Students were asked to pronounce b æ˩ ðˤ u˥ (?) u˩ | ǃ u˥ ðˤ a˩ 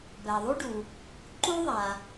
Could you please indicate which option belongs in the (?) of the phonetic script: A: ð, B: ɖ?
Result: B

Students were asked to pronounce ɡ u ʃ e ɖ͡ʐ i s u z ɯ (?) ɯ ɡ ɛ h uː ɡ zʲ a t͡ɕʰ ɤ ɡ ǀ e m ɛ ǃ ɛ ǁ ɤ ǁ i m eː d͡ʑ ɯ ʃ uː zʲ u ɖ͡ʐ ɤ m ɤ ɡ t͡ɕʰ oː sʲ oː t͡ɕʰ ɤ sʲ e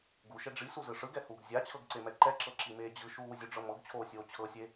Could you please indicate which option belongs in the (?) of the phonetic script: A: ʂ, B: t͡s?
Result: A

